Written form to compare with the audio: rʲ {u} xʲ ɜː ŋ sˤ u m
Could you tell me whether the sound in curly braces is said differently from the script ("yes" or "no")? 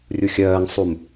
no